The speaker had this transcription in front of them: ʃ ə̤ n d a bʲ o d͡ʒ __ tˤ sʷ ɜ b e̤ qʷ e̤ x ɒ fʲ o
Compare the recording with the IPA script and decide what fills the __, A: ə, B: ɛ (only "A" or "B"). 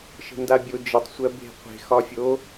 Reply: A